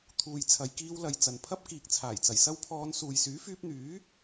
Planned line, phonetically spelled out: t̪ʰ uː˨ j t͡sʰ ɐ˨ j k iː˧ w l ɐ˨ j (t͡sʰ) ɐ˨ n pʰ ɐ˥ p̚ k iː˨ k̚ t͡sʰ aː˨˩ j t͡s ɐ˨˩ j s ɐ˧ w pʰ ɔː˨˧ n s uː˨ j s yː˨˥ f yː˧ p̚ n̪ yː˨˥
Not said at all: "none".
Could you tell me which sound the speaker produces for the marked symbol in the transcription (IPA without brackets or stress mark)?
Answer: t͡s